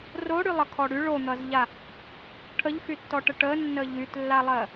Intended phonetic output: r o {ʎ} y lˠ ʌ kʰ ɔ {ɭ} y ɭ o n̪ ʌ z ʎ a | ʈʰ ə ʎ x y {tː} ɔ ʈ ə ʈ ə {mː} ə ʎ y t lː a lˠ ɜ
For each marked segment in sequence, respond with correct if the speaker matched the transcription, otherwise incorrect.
incorrect: ɽ, incorrect: ɽ, correct, incorrect: nː

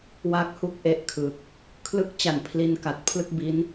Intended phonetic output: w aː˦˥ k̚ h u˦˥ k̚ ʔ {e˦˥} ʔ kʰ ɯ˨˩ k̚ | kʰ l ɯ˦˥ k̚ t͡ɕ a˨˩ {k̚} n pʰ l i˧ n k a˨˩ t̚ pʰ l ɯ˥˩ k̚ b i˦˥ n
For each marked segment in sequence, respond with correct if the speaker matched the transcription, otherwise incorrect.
incorrect: e˥˩, incorrect: none

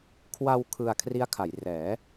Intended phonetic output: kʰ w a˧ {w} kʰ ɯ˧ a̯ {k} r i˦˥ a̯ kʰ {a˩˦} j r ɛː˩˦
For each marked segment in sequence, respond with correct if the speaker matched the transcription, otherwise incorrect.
correct, incorrect: kʰ, correct

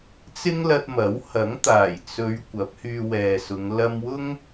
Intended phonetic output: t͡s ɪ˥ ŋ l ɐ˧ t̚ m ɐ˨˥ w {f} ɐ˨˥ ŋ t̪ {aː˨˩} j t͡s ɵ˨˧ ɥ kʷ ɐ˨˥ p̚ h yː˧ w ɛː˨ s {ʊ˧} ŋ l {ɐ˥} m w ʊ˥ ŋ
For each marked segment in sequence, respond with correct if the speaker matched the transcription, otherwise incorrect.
incorrect: h, correct, incorrect: ʊ˨˧, incorrect: ɐ˧

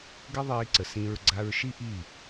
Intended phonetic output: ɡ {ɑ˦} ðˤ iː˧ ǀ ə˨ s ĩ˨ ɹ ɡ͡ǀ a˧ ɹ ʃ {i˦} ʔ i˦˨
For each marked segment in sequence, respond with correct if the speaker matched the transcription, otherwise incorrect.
incorrect: ə˦, correct

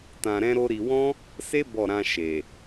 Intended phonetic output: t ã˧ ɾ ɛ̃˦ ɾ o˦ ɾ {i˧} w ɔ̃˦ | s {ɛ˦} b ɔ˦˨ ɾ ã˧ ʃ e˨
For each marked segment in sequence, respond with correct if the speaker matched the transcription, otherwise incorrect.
correct, incorrect: e˦

